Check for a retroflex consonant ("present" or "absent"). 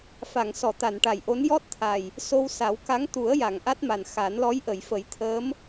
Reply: present